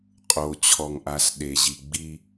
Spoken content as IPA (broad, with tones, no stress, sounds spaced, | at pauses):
qʼ o˨ t͡ɕʰ ɔ˨ ŋ ʔ a˨ s ɗ e˨ ʑ i˨ ɡ͡b i˦